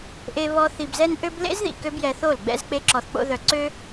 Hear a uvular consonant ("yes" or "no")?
no